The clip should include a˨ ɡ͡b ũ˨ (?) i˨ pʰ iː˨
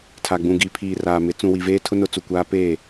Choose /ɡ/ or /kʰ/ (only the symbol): ɡ